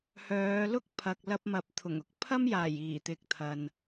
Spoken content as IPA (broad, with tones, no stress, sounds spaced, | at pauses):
h œː˨˧ l ʊ˥ k̚ pʰ ɐ˨ k̚ l ɐ˧ p̚ m ɐ˨ p̚ t̪ʰ ʊ˨˩ ŋ ʊ˧ k̚ pʰ ɐ˥ m j aː˨˩ j iː˨˩ t̪ ɪ˨ k̚ t̪ʰ ɐ˨ n